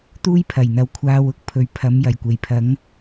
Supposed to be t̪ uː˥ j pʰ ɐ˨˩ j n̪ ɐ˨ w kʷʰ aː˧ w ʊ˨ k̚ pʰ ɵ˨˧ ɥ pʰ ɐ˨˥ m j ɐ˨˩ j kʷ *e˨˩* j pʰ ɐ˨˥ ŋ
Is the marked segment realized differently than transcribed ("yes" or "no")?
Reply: no